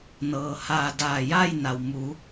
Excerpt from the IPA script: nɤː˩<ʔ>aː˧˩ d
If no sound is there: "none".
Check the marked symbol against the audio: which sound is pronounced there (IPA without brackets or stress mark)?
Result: h